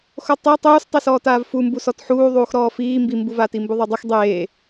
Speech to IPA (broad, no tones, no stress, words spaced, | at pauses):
xotˤe tˤuːstˤisɔː taːvfumbu sɔtħuːðˤuːx ɾɔːfiː mbimbuvaːti mbuðˤadˤix dˤeː